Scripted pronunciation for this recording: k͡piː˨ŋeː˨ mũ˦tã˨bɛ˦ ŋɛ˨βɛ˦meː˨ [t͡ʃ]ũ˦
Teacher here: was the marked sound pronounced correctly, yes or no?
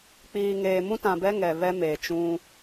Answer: yes